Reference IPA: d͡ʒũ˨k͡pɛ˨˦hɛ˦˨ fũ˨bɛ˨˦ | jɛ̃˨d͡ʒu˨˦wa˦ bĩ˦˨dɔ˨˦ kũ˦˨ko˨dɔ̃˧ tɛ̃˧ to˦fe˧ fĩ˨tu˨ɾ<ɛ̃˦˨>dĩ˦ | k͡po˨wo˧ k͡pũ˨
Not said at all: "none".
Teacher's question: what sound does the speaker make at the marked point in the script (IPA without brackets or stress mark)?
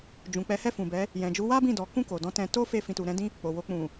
ɛ̃˨˦